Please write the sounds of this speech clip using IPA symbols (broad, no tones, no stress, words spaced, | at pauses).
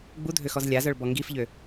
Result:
ɡ͡budʱøxɔz lʲazœɭbɔ ŋɡifʎø